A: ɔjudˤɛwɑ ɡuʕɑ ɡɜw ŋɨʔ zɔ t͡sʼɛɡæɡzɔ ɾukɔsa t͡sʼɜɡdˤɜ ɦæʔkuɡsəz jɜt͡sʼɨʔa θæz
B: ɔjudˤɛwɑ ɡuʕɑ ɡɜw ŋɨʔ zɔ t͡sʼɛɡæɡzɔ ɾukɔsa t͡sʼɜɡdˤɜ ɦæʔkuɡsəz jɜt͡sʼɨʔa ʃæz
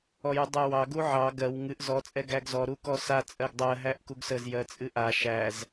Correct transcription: B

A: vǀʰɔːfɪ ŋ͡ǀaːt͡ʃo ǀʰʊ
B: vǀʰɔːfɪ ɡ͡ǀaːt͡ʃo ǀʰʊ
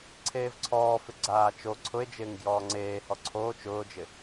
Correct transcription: B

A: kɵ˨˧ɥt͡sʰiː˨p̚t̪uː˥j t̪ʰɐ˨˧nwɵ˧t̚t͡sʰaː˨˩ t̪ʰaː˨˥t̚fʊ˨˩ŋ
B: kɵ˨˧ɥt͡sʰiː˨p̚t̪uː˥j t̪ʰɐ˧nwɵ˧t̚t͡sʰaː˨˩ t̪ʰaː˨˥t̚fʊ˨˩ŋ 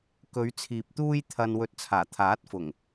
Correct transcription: B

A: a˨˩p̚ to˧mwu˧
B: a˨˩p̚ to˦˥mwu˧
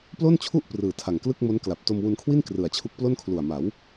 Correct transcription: A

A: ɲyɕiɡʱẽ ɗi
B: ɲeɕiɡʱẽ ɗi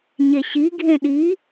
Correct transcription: B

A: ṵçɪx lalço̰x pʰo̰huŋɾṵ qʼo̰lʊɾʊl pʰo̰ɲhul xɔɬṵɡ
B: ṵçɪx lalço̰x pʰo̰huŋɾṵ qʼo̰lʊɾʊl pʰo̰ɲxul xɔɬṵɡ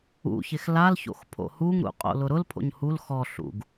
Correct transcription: A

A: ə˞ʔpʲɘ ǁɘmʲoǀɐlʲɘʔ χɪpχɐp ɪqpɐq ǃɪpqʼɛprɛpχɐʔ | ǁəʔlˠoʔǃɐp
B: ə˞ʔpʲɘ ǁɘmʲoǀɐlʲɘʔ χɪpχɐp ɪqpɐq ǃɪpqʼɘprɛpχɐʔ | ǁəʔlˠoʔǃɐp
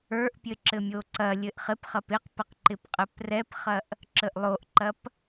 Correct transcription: B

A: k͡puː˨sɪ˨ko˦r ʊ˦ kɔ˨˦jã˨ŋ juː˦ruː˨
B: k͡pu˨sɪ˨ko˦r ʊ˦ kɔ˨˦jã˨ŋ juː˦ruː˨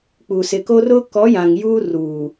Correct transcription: B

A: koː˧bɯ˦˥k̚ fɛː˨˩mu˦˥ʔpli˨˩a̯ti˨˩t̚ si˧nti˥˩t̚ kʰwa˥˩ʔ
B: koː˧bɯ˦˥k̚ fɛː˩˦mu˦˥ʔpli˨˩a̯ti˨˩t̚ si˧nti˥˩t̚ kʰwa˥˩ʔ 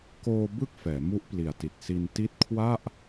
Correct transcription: B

